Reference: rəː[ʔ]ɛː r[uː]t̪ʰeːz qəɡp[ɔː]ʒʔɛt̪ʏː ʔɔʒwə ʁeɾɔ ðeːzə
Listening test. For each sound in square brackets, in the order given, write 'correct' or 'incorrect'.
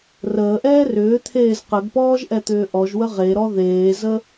correct, incorrect, correct

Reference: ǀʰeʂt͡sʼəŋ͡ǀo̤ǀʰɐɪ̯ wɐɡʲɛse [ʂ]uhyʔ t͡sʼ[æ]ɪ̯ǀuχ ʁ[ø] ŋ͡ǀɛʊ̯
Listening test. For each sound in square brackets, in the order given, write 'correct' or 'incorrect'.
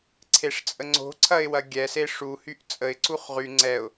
correct, incorrect, incorrect

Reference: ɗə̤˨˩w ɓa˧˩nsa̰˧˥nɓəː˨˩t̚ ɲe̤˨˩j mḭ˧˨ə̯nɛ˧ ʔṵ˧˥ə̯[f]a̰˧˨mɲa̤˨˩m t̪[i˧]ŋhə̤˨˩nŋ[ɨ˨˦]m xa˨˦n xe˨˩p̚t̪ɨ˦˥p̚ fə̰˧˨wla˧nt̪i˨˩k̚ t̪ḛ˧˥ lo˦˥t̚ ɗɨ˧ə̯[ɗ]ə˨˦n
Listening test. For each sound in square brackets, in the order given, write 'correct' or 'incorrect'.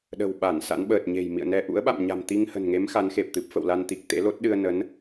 incorrect, correct, incorrect, incorrect

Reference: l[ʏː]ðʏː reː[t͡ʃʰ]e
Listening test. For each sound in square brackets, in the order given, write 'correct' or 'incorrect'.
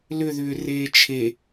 incorrect, correct

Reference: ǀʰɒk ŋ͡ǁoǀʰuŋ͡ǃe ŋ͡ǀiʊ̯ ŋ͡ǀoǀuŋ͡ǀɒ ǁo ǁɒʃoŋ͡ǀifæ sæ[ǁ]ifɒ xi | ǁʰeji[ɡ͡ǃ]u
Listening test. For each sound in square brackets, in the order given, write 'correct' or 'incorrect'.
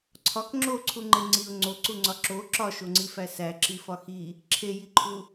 correct, incorrect

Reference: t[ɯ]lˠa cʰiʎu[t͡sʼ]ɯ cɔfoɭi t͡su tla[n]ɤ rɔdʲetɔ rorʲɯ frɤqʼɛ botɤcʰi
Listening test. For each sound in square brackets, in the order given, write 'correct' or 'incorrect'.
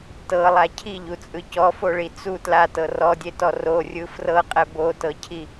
incorrect, correct, incorrect

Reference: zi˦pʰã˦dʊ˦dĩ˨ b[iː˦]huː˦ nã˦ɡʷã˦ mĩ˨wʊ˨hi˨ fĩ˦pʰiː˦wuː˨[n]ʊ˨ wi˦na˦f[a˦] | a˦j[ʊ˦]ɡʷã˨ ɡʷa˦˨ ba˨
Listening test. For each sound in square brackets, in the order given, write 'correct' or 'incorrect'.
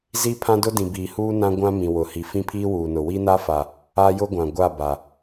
incorrect, correct, incorrect, correct

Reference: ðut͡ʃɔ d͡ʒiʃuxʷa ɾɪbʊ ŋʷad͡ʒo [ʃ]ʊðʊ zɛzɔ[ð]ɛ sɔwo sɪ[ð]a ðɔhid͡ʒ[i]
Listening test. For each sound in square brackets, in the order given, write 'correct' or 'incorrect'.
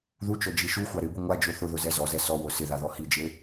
incorrect, incorrect, correct, incorrect

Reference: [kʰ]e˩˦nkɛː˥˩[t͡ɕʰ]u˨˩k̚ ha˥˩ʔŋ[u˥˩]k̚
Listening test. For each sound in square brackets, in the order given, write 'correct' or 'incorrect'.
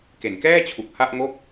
incorrect, correct, incorrect

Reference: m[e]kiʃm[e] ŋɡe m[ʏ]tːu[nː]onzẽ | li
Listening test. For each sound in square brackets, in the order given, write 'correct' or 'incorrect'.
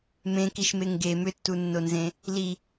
incorrect, correct, correct, correct

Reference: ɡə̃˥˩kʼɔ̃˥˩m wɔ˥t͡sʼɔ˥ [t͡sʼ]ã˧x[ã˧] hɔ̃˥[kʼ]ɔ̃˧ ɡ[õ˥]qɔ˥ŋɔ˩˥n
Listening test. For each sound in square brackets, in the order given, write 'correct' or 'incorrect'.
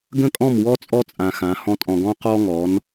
correct, incorrect, incorrect, incorrect

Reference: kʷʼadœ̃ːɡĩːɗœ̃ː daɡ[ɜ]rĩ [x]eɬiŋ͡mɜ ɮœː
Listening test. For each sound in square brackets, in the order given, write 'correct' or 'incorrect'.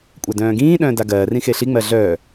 incorrect, correct

